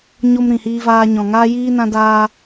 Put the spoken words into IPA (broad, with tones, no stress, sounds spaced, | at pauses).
ɲ o˧ m ɾ ĩ˨ h iː˧ v aː˧ ɲ ɔ̃˨ ŋ aː˦ j iː˦ n ã˧ d aː˧